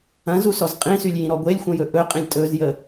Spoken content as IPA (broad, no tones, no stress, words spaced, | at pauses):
ɐ̃zusɔz qʼĩsylʲjĩɾɔ ɡʷelʲxʷɐ̃jɵ ʔɵqʼĩlʲ tʼɵzjə